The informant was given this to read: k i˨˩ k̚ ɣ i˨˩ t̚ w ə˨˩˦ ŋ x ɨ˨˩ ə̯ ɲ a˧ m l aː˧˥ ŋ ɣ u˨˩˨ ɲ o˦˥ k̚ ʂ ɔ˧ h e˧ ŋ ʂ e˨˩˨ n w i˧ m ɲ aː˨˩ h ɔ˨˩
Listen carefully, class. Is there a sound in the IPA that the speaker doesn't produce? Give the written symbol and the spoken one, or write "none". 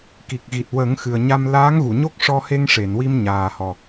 none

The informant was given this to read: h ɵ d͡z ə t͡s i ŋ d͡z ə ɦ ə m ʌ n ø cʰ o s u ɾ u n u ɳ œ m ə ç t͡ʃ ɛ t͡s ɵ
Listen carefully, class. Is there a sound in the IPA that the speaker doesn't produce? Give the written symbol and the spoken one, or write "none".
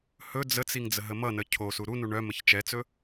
ø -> ə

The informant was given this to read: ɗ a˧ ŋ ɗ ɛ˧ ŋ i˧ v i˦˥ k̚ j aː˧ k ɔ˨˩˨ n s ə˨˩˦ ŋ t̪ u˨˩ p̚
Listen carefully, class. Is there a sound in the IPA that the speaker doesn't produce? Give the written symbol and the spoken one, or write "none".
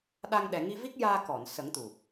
ɛ˧ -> ɛ˨˩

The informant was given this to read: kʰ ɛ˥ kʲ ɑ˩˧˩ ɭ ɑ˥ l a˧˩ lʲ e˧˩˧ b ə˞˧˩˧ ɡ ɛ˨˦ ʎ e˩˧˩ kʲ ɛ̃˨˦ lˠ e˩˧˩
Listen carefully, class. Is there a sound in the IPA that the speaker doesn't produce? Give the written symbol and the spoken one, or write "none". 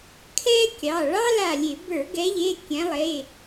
none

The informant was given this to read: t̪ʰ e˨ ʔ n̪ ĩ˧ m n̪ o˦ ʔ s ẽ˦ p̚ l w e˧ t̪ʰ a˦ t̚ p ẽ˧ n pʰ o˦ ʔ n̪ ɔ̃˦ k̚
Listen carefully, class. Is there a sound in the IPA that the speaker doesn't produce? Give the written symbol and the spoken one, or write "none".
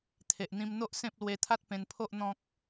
none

